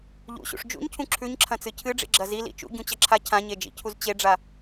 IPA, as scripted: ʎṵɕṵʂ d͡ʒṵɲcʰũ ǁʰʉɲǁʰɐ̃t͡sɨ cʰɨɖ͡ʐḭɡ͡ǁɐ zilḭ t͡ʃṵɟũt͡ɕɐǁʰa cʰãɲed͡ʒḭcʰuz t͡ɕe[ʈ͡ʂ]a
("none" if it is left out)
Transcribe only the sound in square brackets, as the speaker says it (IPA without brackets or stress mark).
ɖ͡ʐ